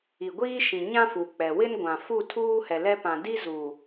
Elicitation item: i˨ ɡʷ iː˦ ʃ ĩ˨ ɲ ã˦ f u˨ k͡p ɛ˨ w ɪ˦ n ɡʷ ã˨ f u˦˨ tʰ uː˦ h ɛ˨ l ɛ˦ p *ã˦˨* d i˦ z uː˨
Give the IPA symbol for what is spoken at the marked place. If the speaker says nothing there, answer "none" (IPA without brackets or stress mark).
ã˨